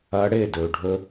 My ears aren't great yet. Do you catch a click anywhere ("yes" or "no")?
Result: no